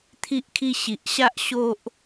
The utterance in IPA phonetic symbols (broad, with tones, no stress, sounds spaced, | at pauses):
t̪ʰ i˦ ʔ kʰ i˦ ɕ i˨ ʔ ɕ a˦ ʔ ɕ o˦ ʔ